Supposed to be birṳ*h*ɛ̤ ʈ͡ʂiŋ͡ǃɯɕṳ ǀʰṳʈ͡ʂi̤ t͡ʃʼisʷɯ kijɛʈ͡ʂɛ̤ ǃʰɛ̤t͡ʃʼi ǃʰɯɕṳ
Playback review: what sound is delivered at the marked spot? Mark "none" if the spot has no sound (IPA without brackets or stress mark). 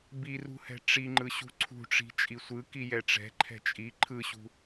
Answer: h